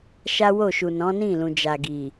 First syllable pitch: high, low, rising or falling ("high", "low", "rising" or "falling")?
high